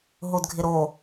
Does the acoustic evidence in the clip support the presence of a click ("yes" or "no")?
no